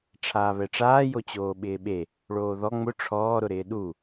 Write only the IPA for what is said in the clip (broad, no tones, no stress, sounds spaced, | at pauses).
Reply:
ʈ͡ʂʰ aː β ɛ ʈ͡ʂ aː j o t͡ɕ oː ɓ ɪː ɓ e | ɭ oː ð ɔ ŋ͡m ʊ ʈ͡ʂʰ ɔː ɾ ʊ ɾ ɪː ɗ u